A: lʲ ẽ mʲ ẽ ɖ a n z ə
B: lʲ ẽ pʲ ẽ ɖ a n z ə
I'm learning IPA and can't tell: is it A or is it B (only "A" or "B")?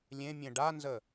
A